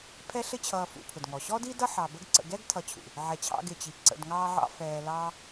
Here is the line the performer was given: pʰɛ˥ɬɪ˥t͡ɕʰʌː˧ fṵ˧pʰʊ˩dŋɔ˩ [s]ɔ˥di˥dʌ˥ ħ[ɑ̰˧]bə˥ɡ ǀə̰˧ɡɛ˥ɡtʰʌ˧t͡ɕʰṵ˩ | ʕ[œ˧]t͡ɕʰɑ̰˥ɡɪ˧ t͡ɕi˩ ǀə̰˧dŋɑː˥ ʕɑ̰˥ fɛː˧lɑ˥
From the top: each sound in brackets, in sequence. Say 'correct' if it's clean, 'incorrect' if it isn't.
incorrect, incorrect, incorrect

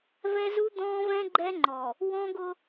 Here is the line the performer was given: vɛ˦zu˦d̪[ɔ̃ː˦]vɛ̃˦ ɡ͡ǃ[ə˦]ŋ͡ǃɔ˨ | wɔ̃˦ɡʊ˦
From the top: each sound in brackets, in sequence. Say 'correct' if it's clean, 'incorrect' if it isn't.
correct, incorrect

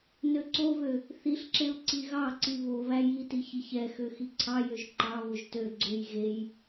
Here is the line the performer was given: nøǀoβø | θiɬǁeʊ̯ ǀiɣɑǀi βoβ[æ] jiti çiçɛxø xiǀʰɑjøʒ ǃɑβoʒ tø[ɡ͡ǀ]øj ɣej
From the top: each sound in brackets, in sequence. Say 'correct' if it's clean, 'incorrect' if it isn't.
correct, correct

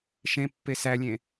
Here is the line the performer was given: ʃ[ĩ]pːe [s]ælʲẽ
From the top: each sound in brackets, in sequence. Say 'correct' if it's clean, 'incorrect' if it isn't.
incorrect, correct

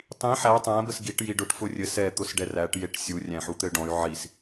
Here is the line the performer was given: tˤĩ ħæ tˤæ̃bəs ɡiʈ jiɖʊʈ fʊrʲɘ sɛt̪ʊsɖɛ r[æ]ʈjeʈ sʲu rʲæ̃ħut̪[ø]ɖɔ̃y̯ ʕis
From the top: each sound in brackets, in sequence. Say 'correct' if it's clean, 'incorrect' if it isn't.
correct, incorrect

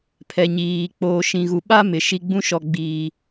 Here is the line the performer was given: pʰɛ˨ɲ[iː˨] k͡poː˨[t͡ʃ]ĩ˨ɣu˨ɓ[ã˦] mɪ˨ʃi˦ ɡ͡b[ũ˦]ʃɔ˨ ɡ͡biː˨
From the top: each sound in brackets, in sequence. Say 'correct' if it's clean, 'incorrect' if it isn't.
correct, incorrect, incorrect, correct

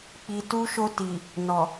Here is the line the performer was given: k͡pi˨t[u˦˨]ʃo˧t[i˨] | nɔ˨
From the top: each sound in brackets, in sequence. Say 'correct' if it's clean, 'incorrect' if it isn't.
incorrect, correct

